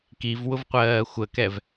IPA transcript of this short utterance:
k i v w ʊ v qʷ ɜː xʷ ə k ɛ v

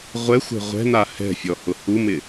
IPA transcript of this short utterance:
ʁʷ ɛ xʷ ɛ̤ ʁʷ ɛ̤ n̪ a h ɛ̤ fʲ ɔ h ʊ h u m ɪ

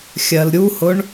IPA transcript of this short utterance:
xʲ ɜ l ɾʲ u h ʊ ɳ

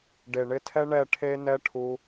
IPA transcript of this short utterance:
ɖ e˨ ɳ ɪ˧ tʰ ɛ˦ ɳ ɛ˦˨ ʈʰ e˦ n ɛ˦ ʈʰ u˧

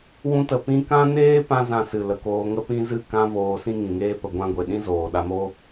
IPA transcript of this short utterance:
w ũ˧ t ə˨ p ĩ˦ k ã˦ n eː˦ p ã˧ z ã˧ s ɨ˨ l ə˨ k oː˧ ŋ ə˦ p ĩ˦ z ɨ˦˨ k ã˦ v oː˧ s ĩ˦ ŋ ĩ˨ ŋ eː˦ p ə˧ ɡʷ ã˦ ɡʷ e˨ ɗ ĩ˦ z oː˨ ɗ a˧ m o˦

